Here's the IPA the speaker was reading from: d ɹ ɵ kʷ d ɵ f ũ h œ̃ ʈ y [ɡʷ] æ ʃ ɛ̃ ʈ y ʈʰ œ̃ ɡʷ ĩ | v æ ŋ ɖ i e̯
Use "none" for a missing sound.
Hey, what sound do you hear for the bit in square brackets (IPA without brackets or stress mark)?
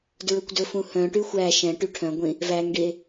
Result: xʷ